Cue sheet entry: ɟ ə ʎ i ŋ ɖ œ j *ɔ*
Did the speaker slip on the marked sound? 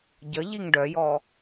no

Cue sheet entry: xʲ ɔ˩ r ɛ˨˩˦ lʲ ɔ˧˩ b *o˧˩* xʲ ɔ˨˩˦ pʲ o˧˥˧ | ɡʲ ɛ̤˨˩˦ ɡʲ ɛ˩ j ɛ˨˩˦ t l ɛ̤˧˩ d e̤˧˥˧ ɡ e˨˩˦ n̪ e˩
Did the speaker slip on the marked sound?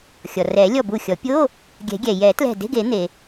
yes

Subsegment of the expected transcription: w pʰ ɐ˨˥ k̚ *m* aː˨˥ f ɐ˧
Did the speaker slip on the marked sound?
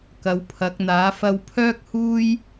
yes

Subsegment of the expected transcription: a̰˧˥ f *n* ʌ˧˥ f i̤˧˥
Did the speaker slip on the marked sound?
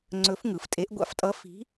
yes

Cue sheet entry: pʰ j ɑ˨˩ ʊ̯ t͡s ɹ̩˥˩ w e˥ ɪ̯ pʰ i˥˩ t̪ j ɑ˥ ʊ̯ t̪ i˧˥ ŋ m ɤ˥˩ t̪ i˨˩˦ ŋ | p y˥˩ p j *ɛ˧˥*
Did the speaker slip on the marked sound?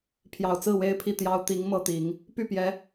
no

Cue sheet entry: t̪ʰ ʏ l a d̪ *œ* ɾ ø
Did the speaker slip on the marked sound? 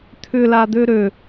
yes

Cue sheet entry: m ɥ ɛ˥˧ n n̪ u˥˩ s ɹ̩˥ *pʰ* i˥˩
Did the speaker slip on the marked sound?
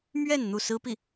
yes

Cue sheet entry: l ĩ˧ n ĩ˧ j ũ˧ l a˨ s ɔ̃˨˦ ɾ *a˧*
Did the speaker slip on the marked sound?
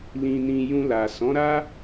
yes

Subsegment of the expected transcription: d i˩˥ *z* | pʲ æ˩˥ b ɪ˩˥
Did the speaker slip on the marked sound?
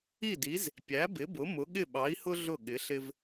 no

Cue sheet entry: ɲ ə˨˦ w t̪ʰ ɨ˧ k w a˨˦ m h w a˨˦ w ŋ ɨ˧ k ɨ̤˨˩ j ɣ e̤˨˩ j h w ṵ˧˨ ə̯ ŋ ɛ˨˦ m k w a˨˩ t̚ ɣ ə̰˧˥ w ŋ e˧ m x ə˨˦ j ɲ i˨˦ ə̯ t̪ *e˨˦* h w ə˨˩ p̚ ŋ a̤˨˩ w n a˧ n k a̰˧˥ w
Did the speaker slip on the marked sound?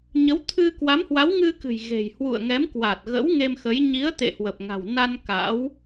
yes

